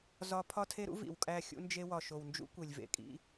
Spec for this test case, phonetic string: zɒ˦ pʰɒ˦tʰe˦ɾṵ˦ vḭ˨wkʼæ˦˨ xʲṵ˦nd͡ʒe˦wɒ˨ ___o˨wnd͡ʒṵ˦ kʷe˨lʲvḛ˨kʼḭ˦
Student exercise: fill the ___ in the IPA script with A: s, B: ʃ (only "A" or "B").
B